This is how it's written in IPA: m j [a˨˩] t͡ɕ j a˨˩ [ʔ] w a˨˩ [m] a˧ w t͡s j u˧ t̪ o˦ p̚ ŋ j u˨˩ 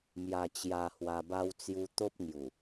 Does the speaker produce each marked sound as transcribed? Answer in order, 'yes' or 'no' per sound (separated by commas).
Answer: yes, no, no